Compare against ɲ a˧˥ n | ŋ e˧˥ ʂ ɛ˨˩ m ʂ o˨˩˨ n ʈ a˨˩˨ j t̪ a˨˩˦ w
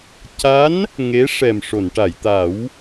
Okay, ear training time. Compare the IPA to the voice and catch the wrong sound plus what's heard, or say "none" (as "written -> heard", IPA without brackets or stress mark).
ɲ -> c